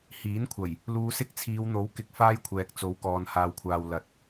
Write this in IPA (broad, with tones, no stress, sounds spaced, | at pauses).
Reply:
h iː˨˥ n kʷʰ ɐ˨˩ j | l uː˨˧ s ɪ˥ k̚ t͡sʰ iː˨˧ w n̪ o˨˥ w k ɪ˨ k̚ f aː˥ j kʷʰ ɛː˨ k̚ t͡s o˨˧ w k ɔː˨ n h aː˨ w kʷʰ aː˨ w l ɐ˨˥ t̚